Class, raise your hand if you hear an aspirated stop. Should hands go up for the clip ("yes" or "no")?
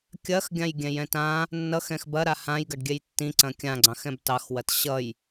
no